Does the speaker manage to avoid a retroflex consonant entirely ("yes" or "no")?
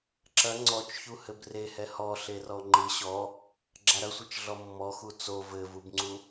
yes